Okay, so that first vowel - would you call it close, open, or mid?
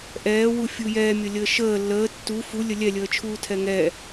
mid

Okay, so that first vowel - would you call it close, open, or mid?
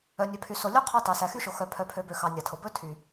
mid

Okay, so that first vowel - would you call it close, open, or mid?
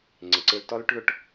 close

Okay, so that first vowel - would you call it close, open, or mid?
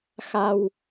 open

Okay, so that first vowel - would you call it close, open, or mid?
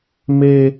mid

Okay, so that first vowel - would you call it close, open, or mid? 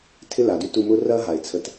close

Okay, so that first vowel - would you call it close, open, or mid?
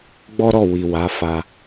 mid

